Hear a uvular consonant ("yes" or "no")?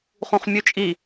yes